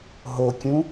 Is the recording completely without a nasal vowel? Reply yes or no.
no